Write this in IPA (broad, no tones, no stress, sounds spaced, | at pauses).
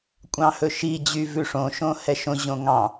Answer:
kʷʼ ɑ̃ h ɵ ʃ i d͡ʑ y v ʉ ʂ õ ʃ õ h ɛ ʃ õ ʑ õ ŋ ɑ̃